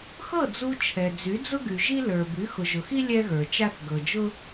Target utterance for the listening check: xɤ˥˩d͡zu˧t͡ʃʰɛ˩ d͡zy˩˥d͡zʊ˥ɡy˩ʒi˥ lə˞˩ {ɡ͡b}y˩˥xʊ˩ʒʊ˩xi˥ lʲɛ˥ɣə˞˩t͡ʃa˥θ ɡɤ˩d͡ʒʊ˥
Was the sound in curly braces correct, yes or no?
no